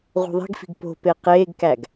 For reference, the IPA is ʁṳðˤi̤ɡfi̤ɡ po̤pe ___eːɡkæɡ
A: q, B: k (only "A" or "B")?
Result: A